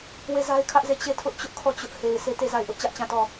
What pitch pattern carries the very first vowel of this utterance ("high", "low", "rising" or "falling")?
falling